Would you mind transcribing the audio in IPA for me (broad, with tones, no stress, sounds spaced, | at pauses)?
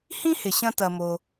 h ĩ˥ h ɪ˩ ɕ ɐ̃˧ t ɐ˩ m o˩